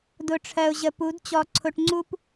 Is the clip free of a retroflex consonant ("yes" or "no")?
no